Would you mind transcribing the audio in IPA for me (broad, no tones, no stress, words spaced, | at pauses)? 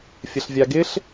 fʲəɬvʲaɡɪɬ